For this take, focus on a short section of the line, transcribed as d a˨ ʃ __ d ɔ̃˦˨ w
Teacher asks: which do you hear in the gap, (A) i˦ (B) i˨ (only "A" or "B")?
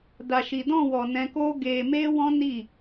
B